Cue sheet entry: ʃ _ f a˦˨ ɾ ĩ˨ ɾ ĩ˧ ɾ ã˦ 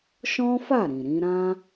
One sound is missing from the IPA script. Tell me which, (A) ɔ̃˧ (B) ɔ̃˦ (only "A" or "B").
B